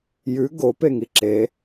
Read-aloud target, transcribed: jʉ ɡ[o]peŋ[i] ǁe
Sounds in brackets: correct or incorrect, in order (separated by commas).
correct, correct